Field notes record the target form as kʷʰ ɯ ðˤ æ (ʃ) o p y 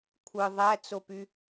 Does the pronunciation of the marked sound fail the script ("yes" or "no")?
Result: yes